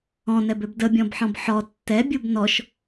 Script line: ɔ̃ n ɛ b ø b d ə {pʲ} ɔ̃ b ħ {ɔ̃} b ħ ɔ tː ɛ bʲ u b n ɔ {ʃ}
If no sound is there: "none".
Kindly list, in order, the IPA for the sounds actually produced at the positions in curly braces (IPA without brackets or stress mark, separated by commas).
bʲ, ɔ̃, ʃ